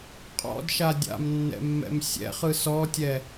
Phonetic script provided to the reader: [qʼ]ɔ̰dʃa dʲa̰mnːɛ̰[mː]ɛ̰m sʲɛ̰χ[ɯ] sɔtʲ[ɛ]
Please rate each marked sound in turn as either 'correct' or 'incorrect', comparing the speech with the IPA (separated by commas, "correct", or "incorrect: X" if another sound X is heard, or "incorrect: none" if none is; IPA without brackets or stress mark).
correct, correct, correct, correct